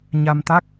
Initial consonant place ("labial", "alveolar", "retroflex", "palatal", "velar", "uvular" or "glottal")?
palatal